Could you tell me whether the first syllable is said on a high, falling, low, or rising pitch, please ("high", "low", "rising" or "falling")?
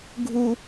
high